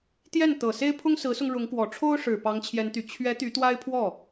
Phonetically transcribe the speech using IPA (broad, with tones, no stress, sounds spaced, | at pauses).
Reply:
t̪ j ɛ˥˩ n t̪ ɤ˨˩ s e˥ ɪ̯ pʰ ʊ˥ ŋ s ɹ̩˧˥ s ʊ˧ ŋ ɻ ʊ˧˥ ŋ k w ɔ˨˩ ʈ͡ʂʰ o˥ ʊ̯ ʂ ɻ̩˨˩ p ɑ˧˥ ŋ t͡ɕʰ j ɛ˧˥ n t̪ y˨˩ t͡ɕʰ ɥ ɛ˧˥ t̪ y˧˥ t̪ w a˥ ɪ̯ pʰ w ɔ˥˩